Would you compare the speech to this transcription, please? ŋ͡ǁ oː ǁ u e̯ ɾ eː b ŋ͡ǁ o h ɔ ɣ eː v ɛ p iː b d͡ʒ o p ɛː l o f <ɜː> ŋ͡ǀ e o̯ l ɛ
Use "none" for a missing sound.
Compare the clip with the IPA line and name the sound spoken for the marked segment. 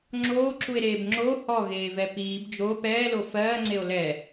ɜː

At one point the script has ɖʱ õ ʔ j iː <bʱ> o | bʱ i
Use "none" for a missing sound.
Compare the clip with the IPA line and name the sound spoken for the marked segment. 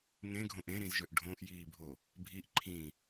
bʱ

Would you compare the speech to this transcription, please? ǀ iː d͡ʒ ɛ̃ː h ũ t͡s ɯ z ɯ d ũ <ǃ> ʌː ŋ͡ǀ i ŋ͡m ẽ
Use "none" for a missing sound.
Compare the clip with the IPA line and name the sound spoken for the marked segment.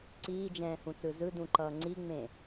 ǃ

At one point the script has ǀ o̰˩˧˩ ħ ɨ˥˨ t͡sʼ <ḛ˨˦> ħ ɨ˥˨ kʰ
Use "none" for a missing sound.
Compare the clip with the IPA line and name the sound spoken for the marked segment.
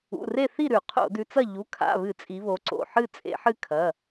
ḛ˨˦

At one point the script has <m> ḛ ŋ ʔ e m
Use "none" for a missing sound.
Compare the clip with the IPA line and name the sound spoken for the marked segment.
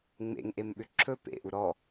ŋ͡m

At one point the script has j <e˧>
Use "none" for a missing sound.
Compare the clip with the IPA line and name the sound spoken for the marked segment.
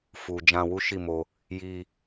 i˧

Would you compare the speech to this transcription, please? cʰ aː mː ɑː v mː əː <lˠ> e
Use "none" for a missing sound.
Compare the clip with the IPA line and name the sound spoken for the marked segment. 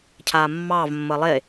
lˠ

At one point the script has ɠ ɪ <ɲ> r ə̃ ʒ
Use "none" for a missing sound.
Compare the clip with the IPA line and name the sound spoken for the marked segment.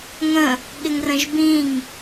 ŋ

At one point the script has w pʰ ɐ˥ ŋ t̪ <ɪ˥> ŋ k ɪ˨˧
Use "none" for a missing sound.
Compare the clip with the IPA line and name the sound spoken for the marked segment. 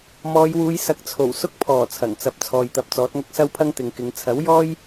ɪ˨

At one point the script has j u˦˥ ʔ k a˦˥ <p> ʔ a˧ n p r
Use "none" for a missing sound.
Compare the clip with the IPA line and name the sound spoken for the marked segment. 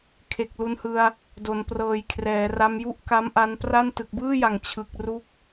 m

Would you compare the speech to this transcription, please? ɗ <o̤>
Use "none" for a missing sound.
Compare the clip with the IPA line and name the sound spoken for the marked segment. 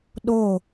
o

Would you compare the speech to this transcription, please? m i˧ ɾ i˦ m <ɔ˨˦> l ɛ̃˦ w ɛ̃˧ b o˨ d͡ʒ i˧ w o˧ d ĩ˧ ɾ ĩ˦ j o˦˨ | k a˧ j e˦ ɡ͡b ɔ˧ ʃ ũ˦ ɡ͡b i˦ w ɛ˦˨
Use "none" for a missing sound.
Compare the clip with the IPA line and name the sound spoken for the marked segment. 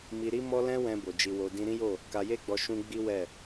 ɔ˦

